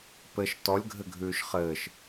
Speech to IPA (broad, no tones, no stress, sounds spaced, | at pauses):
p ɘ ʃ t ɔ lʲ ɡʱ ɘ ɡʱ ʉː ʃ χ ɘː ʃ